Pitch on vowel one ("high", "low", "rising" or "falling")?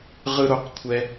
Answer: high